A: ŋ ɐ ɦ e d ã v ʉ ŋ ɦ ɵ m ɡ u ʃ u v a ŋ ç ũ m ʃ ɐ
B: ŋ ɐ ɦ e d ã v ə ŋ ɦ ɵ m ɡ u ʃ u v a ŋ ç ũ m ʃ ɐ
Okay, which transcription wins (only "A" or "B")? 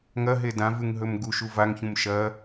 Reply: A